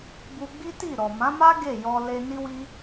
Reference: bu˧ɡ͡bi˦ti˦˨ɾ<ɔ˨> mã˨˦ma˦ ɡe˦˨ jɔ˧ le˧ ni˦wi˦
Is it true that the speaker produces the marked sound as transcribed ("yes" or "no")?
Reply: yes